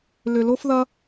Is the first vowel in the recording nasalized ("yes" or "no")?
no